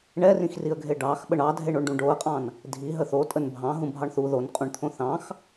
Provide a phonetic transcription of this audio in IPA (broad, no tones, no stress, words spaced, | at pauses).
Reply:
ɳɛrĩxriə̯ɡʱe ɖɑx ɓəɳɑdʱeɳoɳ ɖũɖoə̯qʼɑ̃n | dʱi ɦəθotʼən bʱɑ̃ ɦũbʱɑɳθu ðonqʼũɳt̪ʰõ θɑ̃x